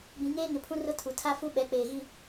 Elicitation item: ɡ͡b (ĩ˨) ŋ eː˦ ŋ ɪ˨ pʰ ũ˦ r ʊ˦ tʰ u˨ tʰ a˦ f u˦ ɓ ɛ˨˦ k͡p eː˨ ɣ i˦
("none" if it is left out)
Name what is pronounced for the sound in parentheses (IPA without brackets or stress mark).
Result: ĩ˨